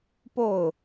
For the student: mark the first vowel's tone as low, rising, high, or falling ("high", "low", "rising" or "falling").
falling